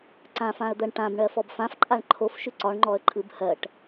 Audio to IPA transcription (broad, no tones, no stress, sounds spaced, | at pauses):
ǀ ã f ã ə̯ d̪ ɜ ɳ ʈ ã b ɳ ɜ f ɔ b f ã f ǃʼ a ɳ ǃʰ o f ʃ ʉ ǀ ɒ ɳ ŋ͡ǃ ɔ ə̯ ǃʼ ɯ b h ɜ ʈ